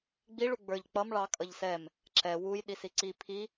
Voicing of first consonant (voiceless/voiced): voiced